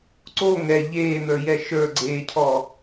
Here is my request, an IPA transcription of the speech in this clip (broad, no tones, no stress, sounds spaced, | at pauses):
ǀ o ŋ ɛ ʎ eː n̪ ə˞ j ɛ ʃ ə˞ ɡ͡ǀ eː cʰ ɔ